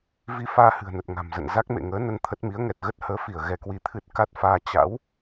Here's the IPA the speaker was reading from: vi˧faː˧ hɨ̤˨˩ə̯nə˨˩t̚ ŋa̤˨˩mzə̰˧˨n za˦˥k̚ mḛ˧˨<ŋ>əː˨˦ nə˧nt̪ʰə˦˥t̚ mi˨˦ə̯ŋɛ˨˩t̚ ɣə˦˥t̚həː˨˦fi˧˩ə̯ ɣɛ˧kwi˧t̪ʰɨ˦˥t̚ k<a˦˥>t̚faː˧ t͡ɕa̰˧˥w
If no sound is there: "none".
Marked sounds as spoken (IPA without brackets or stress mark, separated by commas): ŋ, a˦˥